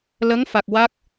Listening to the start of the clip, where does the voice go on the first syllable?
rising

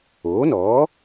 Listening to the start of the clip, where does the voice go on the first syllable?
rising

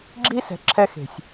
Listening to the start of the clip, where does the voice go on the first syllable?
high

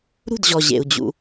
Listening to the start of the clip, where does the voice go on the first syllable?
falling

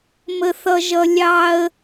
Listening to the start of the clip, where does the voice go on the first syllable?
high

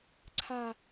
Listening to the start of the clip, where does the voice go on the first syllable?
falling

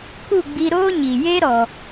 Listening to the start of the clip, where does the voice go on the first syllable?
falling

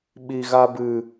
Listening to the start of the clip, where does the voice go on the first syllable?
low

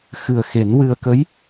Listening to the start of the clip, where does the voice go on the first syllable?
low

